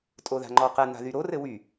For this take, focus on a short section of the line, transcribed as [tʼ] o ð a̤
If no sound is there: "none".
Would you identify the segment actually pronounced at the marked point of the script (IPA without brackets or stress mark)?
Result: tʼ